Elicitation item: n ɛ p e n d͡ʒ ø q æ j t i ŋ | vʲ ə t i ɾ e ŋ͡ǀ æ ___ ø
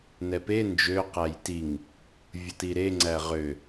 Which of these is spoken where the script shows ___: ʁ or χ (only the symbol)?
ʁ